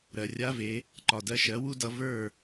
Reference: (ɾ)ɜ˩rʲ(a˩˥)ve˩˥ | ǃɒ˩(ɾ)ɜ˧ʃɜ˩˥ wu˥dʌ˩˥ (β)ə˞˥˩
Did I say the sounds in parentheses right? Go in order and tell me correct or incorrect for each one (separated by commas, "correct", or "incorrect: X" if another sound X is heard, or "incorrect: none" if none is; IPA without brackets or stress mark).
correct, incorrect: a˥, incorrect: d, incorrect: v